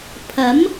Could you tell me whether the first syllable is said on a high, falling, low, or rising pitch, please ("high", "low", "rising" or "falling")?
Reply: rising